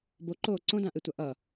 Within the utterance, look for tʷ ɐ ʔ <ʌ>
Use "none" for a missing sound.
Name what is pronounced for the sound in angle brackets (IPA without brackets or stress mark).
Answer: ʌ